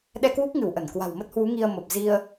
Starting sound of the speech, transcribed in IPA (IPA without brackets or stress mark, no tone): ɗ